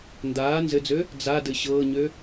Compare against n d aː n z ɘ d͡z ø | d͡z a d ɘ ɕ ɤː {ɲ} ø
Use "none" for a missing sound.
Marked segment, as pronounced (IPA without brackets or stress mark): ɲ